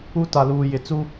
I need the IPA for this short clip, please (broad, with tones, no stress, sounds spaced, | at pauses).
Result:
u˦ t a˨ l uː˨ j ɪ˨ t͡s u˦